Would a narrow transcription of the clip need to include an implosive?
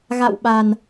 yes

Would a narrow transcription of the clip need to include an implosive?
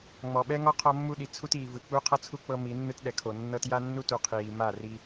yes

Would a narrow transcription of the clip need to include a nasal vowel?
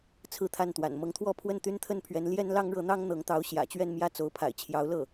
no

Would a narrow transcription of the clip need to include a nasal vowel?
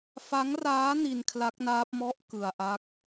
no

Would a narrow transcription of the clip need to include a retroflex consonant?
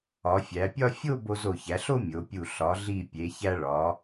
yes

